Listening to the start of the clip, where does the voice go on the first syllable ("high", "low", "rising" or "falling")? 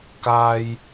high